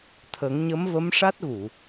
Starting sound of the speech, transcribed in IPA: t̪ʰ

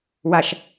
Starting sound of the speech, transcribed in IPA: w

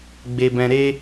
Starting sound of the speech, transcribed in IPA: ɡ͡b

